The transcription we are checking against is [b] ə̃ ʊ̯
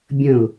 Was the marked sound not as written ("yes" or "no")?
yes